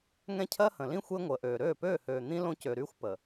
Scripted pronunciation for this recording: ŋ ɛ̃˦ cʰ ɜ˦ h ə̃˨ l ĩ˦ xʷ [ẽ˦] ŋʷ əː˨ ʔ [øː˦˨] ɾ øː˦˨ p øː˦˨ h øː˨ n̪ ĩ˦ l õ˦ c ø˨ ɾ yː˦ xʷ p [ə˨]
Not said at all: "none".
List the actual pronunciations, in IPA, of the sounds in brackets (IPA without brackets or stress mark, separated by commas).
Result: e˦, øː˨, ə˨